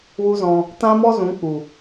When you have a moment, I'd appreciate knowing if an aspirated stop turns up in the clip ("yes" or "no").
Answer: no